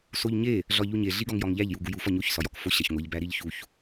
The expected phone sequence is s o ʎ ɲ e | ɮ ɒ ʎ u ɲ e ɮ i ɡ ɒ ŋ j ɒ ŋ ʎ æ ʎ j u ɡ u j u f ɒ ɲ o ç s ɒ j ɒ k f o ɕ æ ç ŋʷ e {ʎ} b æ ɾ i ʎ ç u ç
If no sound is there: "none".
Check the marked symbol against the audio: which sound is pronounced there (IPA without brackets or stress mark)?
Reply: ʎ